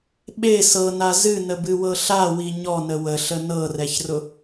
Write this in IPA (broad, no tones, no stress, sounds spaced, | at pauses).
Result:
ɓ e s ɤ n a z ɨ n ə b ɨ w ɤ ɬ a w i ɲ ɔ n ə w ə ɬ ə n ɤ r ɛ ç r ʊ